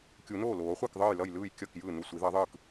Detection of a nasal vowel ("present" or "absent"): absent